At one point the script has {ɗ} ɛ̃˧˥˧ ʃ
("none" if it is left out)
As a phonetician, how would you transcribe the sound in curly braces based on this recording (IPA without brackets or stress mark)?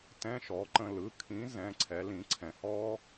t